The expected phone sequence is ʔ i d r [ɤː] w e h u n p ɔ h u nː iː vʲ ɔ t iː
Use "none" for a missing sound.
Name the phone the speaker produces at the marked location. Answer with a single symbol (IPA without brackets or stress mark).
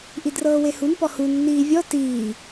ɤː